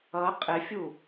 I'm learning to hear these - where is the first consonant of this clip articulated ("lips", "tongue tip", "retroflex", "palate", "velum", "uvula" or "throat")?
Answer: uvula